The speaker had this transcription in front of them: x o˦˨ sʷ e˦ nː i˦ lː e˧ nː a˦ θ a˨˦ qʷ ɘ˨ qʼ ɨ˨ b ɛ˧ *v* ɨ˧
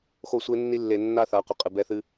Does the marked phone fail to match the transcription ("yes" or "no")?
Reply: yes